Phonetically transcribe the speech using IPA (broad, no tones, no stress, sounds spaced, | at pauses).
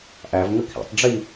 ʔ æ v ŋ ə kʰ ḭ tˤ ɖ͡ʐ i